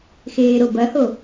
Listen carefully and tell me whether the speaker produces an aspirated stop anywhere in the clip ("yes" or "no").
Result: no